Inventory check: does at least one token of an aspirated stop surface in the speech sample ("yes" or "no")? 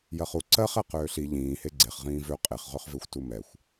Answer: no